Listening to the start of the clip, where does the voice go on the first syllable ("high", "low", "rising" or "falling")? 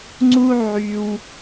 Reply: high